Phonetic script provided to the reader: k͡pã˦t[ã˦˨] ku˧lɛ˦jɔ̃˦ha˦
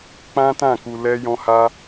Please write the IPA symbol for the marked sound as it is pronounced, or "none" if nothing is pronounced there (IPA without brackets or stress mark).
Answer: ã˦˨